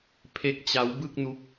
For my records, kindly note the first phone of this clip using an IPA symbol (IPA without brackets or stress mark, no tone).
pʰ